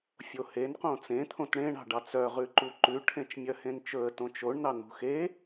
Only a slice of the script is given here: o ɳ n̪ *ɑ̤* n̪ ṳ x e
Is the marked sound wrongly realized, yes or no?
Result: yes